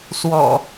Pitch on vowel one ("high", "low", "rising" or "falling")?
low